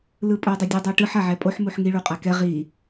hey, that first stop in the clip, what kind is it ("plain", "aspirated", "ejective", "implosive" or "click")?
ejective